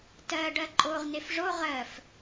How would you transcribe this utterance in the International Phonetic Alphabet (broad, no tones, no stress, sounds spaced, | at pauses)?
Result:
t ɜ ɖ ɜ ǃʼ o ʁ n e f ʐ o ʁ ɜ f